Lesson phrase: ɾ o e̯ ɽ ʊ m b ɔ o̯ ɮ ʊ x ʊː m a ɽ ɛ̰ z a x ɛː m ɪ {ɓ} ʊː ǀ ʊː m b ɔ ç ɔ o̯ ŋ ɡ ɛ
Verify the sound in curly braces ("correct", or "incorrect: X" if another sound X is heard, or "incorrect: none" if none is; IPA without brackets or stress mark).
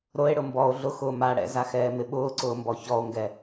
correct